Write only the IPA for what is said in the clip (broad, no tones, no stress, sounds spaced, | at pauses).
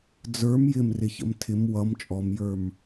d͡z ə˞ m j ɪ m r ɪ ç ə̰ m tʰ ɪ m w ʌ m t͡ʃʼ ɔ m j ə˞ m